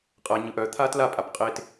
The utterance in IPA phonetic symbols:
qʼ ɐ ɲ ɯ ʔ œ t̪ʰ a t l a pʼ a p qʼ e t

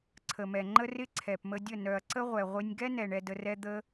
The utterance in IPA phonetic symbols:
ǀʰ ə˨ m ɛ˨ ŋ͡ǃ ə˦ r ɪ˦ ǀʰ ɛ˨ p m ə˧ dʲ ə˦˨ n œ˨ ɐ̯ ǀ ə˦ ʁʷ ɛ˨ ʁʷ ɪ˦ nʲ ɡ ɛ˦ n ɛ˨ ɳ ɛ˧ d ə˧ r ɛ˦ d̪ ə˦

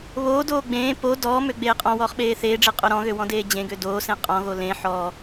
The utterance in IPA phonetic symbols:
β oː d oː ɡ͡b ẽː p o d ɔː m ø ɡ͡b eː qʼ ɔ̃ w ɔː χ ɓ eː θ eː ɖ͡ʐ e qʼ o ɾ ɔ̃ ɣ ø w ɔ̃ d eː d͡ʑ ẽ ɡ ø d oː s ẽ qʼ ɔ̃ ɣ o l ẽ ħ ɔ

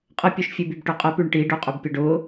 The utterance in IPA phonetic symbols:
qʼ ə pʲ ø ʃ fʲ ʉ b y b ʈ ø qʼ ə p y ɳ ʈ i ɖ ø qʼ ø b pʲ ø ɖ ʊ

